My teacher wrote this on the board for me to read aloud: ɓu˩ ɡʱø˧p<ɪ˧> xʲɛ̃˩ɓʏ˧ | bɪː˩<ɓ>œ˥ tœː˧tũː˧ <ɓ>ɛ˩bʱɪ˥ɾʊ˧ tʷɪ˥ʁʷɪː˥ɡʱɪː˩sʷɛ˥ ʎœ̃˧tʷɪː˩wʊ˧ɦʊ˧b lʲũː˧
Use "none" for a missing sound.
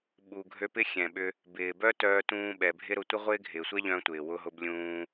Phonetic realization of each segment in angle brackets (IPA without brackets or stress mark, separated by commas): ɪ˥, b, ɓ